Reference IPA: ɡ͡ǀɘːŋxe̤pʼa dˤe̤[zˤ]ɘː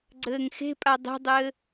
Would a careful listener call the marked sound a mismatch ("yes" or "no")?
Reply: yes